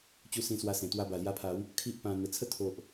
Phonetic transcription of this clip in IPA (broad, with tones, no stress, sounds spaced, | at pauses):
t͡ɕ u˧ s ĩ˧ s w a˧ s ẽ˨˩ t̪ w a˧ b a˨˩ l j a˧ pʰ a˨˦ w | kʰ i˦ ʔ p ã˧ n̪ ə˨˩ t͡sʰ ə˥˧ t̪ʰ o˨ ʔ